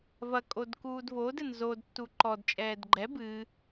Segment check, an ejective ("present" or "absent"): present